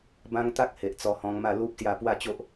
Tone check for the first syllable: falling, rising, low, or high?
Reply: high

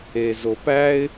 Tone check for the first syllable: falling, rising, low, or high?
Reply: low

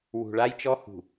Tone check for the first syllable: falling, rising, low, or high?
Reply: low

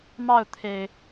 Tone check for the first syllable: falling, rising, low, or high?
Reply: falling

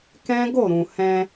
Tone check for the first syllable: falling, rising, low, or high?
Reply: high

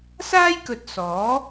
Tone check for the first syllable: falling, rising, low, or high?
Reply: high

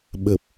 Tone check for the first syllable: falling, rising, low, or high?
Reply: low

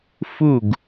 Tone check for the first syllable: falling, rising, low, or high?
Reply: falling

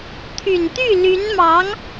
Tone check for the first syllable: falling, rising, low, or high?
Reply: low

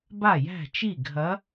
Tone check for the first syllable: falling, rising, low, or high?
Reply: falling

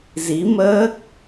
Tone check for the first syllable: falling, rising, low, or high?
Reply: rising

